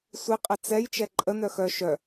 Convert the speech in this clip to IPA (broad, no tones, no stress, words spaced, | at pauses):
sʷi qʼət͡sɛj t͡ʃɛǃʼə nœxœ ʃœ